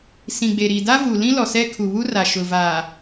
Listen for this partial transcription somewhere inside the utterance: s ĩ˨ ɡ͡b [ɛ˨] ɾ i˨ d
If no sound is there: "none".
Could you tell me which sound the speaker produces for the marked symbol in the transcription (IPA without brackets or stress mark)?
e˨